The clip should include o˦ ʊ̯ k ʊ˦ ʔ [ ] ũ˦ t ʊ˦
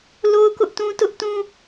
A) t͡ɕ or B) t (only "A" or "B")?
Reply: B